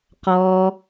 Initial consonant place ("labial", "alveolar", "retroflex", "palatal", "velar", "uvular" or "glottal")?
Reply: uvular